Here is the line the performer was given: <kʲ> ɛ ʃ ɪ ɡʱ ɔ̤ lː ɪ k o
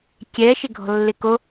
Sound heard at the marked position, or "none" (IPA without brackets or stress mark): kʲ